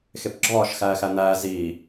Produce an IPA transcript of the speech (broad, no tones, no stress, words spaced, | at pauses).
xepɡ͡ǁɒːʃ xæːxæn̪æː ziː